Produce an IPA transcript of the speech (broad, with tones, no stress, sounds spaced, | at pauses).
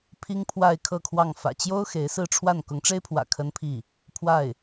pʰ i˥ ŋ pʰ w a˥˧ ɪ̯ kʰ ɤ˥˧ kʰ w ɑ˥˩ ŋ f ä̰˨˩ t͡ɕ j o˥ ʊ̯ x e˧˥ ɪ̯ s ɹ̩˥˧ ʈ͡ʂʰ w a˥˩ n k ʊ˧˥ ŋ ʈ͡ʂ e˥ ɪ̯ pʰ w ä̰˨˩ kʰ ə˥ n pʰ i˥˩ | pʰ w a˥˩ ɪ̯